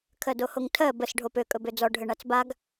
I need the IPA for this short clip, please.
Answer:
kʰ ɜ d o h o ŋ tʰ ɜ b ə s ɖʱ o p ø kʼ ɵ b ø d͡z ɔ ɖʱ ɘ ɳ a t͡s b a ɡ

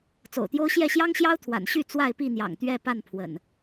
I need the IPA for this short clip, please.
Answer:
t͡s o̰˨˩ ʊ̯ t̪ j o˦ ʊ̯ ɕ j ɛ˥˨ ɕ j ɑ˦ ŋ ɕ j ɑ˦ ʊ̯ t̪ʰ w a̰˨˩ n ɕ y˥˨ t͡s w a˥˨ ɪ̯ p i˥˨ n̪ j ɑ̰˨˩ ŋ t̪ ɥ ɛ˥˨ p a˥˨ n pʰ w ə̰˨˩ n

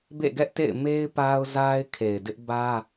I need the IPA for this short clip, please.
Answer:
b ḛ˦˨ ɡ ɛ˦ ʔ t ḛ˦˨ ɪ̯ m e˦ ɪ̯ p a˦ ʊ̯ z a˦ ɪ̯ kʰ e˨ ɪ̯ d ɪ˦ ʔ b ä˦

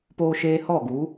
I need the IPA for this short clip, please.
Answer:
p oː˧ ʃ eː˧ h ɔ˦˨ ɡ u˨˦

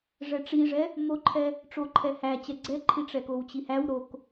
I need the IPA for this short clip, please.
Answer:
ʐ ɛ ʈ͡ʂ i ʐ ɛ | m o ǃʰ ɛ | ʈ͡ʂ o ǃʰ ɛ h æ t͡ɕ ɛ ɡ͡ǀ ɛ ǃʰ i ʈ͡ʂ ɛ k o w t͡ɕ i h æ w ɾ o k

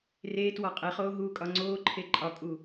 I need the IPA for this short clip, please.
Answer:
r eː t w ɒ qʼ e χ oː ɦ uː kʼ ɒ ŋ͡ǀ oː ǃʰ e ǃʼ ɒ kʼ u

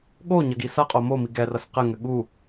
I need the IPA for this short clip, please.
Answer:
ɠ o ɲ ɐ ɡ i s ɐ qʼ o m o m i ɡ ɛ r ɐ s q ɘ ŋ ɘ ɠ u

